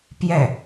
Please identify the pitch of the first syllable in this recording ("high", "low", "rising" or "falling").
falling